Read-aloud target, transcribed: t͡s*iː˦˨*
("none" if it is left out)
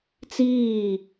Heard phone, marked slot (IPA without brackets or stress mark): iː˦˨